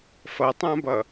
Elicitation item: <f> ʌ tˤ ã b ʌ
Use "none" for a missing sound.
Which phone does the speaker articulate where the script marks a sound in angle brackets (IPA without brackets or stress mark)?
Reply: f